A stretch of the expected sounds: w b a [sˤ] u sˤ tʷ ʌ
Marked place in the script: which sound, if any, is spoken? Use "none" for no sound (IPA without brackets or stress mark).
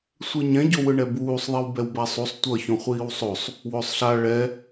sˤ